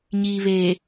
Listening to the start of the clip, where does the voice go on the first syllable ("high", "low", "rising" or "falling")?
low